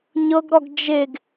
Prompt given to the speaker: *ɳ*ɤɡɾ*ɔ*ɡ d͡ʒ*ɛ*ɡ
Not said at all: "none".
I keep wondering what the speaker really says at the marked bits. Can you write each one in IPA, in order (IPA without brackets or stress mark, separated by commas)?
ɲ, ɔ, e